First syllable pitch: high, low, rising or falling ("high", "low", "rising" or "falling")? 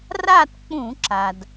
falling